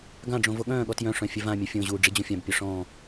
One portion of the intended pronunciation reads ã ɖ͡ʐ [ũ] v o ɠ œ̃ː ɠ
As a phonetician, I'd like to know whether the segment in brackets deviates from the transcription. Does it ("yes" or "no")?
yes